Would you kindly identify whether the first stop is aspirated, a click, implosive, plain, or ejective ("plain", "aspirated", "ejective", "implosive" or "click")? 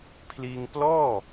aspirated